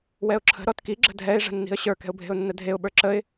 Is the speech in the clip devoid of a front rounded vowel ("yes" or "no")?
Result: yes